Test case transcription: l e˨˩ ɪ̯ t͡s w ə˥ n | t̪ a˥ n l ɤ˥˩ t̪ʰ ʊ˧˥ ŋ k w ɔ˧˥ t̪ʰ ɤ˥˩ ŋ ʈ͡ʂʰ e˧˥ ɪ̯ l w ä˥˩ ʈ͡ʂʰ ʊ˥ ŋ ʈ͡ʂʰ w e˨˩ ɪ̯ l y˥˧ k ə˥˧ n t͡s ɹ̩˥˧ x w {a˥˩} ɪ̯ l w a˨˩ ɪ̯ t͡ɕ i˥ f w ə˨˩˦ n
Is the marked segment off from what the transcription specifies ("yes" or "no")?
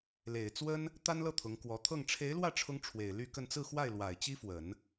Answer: no